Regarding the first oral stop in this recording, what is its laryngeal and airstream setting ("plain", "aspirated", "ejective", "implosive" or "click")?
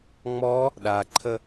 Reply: implosive